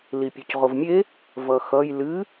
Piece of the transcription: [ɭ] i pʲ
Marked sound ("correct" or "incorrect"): incorrect